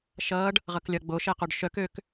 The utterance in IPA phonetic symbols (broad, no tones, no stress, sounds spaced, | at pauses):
ʃ ʌː ɖ | ʁ ʌ k lʲ ʌ ɡ͡b o ʃ ɛ q o ɖ ʃ œ k ø k